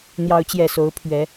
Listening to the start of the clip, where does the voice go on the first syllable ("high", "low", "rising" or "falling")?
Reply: rising